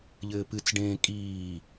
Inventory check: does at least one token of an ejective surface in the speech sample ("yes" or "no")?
yes